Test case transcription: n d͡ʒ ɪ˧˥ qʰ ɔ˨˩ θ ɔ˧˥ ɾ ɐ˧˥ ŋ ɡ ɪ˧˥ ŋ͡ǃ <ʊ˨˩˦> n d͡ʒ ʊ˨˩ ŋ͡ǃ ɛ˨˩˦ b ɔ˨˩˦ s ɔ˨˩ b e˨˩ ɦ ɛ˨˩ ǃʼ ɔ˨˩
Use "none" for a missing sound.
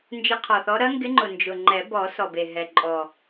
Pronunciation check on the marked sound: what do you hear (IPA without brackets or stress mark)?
ʊ˨˩